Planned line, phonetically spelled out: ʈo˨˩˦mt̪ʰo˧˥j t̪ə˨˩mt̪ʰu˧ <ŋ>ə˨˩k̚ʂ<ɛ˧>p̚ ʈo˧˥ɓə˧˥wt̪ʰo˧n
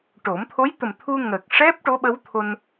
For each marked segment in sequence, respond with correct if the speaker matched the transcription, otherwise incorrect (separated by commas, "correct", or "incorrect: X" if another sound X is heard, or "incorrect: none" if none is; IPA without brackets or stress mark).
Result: correct, incorrect: ɛ˦˥